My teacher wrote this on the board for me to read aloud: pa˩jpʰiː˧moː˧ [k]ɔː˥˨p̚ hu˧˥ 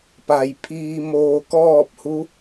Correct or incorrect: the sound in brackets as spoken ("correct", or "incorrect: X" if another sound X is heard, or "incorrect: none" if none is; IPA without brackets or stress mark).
correct